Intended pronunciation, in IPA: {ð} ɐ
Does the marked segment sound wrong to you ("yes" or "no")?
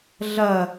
yes